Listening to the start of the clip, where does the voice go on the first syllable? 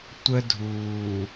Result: high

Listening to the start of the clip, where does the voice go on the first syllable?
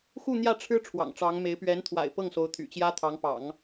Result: falling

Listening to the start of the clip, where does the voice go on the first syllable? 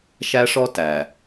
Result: high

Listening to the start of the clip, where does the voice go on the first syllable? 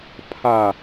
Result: low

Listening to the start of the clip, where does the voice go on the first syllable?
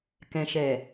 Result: low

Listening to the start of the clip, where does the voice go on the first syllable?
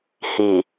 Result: low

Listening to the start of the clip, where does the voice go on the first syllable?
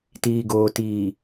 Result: low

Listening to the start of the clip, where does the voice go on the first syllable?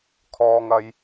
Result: low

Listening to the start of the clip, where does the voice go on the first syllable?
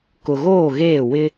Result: low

